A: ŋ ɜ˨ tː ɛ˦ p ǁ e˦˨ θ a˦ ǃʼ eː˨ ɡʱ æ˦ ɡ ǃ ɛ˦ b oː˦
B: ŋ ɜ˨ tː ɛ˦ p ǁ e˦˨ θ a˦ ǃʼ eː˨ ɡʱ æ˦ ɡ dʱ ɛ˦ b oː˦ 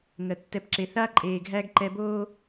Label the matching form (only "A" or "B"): A